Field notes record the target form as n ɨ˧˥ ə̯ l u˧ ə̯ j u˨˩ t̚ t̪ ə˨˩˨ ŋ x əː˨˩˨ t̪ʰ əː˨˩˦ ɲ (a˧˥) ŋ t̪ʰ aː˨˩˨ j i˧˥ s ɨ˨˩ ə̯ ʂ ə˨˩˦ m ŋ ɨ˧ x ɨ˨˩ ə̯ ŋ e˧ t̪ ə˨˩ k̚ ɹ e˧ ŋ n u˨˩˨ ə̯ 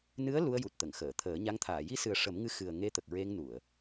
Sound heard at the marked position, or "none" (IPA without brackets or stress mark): a˧˥